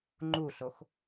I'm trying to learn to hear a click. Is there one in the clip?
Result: yes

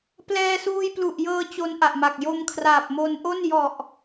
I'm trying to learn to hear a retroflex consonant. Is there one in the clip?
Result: no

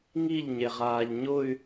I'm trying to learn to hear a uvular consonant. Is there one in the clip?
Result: yes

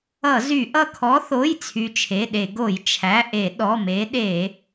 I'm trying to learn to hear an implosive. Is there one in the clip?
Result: yes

